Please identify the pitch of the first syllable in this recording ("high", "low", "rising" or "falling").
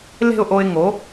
falling